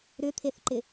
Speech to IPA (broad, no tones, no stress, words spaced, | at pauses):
ɾʏt̪ʰeθǃɪ